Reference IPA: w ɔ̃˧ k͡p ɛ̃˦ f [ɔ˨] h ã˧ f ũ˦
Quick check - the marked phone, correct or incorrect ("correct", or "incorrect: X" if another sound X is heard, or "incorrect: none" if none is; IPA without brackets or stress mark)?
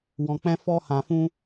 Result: incorrect: ɔ˦